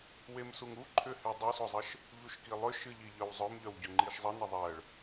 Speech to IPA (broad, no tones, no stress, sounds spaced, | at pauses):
w e m s u ŋ u ǃʰ ʏ h e dˤ u s o zˤ ə ʃ | ʎ u ʃ k i lˠ ʏ ʃ ɨ ʎ i ʎ œ w zˤ œ m ʎ œ w ɟ ʏ ŋ͡ǃ i ʃ zˤ ə n ə ðˤ ɜ ɭ